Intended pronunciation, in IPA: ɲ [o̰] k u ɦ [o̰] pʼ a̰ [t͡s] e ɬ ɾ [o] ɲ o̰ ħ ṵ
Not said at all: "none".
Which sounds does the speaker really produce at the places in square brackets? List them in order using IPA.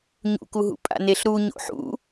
ṵ, ṵ, n, u

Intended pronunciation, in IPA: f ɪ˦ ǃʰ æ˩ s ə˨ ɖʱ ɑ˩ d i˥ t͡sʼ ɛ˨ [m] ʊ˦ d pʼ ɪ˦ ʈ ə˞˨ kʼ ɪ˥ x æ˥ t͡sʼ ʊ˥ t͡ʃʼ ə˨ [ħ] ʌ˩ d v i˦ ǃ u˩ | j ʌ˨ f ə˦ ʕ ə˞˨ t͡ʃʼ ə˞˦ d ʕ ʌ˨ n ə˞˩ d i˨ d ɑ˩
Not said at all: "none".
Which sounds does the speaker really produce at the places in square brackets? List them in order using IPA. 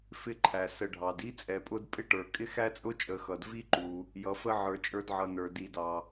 pʼ, x

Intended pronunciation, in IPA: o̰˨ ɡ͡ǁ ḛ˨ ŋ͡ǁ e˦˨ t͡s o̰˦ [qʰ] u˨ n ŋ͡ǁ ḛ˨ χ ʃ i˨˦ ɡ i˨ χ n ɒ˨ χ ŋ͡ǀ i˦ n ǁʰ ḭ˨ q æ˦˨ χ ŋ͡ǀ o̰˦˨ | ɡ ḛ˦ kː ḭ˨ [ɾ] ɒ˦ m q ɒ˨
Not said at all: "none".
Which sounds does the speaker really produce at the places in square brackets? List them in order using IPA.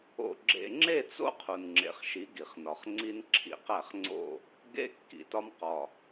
qʰ, t

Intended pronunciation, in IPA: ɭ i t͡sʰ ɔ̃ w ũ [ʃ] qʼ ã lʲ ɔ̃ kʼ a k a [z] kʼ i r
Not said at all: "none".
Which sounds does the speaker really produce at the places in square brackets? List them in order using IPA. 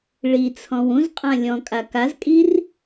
z, z

